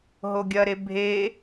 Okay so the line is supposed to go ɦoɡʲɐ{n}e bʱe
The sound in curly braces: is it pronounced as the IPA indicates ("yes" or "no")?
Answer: no